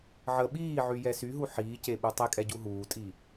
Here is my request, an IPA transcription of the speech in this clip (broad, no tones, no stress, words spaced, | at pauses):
ʕə ɓiːʕyjɛ syɦu ħiːceɓu tˤekʼɛɟu ɦuːtʼi